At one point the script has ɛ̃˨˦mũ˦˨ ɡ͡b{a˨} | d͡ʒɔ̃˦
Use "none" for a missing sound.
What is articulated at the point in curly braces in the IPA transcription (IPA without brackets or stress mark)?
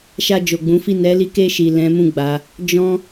a˨˦